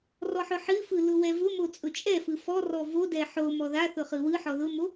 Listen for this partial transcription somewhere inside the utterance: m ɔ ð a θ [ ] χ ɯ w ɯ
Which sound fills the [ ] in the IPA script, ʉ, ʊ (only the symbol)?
ʊ